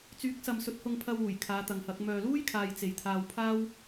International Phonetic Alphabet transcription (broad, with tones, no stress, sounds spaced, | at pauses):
t͡s yː˨˥ k̚ s ɐ˨ m s ɵ˨˥ t̚ h ʊ˧ ŋ pʰ ɐ˧ w uː˨˩ j kʰ aː˨˧ t̪ ɐ˨ ŋ h ɐ˨˥ k̚ m œː˨ l uː˥ j kʰ aː˧ j t͡s e˨ j t̪ʰ aː˧ w pʰ aː˥ w